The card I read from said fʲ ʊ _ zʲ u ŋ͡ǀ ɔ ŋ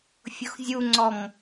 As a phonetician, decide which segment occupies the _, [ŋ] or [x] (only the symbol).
x